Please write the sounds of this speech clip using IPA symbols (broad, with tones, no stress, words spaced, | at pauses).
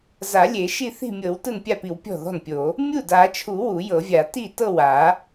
za˨˩˦lʲe˨˩˦ ʃi˥˩θi̤˥˩mʲɤ˨˩˦w tɯ˥˩npʲa˥˩pi˨˩˦w pʲɔ̤˥˩ðɔ̤˥˩npʲo˨˩˦ | mʲu˥˩da˨˩˦t͡ʃʰu˨˩˦ wu˨˩˦jɤ˨˩˦vʲa˨˩˦ ti˥˩tɤ˥˩wa˨˩˦